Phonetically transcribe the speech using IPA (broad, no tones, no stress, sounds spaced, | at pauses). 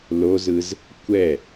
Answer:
l o z ɯ z | kʷ ɛ